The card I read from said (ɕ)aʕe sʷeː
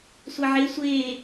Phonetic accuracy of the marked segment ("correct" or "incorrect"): incorrect